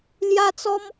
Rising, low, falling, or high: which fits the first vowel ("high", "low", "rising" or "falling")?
high